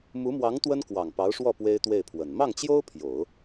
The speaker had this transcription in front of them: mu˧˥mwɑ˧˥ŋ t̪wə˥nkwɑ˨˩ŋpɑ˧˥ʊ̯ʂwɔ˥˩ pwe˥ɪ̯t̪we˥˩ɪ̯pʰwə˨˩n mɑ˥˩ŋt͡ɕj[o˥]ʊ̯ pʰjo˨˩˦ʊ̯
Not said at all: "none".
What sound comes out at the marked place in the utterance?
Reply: o˥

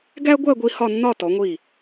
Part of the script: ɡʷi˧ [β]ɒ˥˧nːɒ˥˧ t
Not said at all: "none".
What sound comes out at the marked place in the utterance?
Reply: h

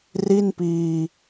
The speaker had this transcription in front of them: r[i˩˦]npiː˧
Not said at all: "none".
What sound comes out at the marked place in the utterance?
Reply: i˥˩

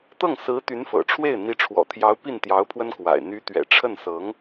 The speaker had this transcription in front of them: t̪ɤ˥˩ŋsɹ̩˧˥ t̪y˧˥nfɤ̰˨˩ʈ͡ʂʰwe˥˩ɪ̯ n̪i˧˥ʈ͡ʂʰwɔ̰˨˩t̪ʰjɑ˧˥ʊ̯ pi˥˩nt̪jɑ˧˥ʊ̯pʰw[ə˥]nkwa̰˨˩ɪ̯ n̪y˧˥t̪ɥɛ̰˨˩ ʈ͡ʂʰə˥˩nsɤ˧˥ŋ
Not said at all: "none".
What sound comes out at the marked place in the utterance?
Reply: ə˥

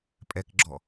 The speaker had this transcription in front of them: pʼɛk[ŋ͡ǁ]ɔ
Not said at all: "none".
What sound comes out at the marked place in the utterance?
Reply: ɡ͡ǁ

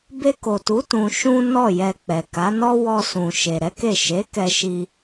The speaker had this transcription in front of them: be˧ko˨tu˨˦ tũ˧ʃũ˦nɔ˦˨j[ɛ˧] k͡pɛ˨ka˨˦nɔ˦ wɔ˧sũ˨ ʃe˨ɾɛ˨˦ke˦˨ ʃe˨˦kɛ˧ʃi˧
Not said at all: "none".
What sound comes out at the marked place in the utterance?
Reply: ɛ˧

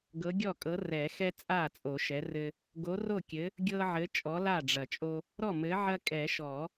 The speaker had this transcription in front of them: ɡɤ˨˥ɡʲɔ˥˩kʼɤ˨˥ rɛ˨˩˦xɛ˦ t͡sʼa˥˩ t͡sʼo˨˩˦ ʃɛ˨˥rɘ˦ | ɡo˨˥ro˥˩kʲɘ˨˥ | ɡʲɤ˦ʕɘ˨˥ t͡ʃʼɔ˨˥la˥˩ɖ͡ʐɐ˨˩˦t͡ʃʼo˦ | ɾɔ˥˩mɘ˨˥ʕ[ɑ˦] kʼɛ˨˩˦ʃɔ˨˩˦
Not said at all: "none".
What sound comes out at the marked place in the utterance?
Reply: ɐ˦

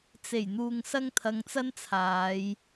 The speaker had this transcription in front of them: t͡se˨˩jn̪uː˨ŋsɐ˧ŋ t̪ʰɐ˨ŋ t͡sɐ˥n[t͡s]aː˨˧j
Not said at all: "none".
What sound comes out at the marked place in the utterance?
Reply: t͡sʰ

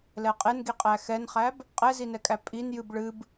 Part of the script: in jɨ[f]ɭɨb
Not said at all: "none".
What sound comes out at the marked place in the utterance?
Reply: b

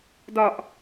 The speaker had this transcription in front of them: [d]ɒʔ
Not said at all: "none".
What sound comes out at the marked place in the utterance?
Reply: d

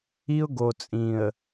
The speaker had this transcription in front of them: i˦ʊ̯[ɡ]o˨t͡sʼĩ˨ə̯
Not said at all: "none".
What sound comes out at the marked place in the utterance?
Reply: ɡ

